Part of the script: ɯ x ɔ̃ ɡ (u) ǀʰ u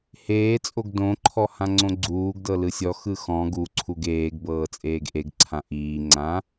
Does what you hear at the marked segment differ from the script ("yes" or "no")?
no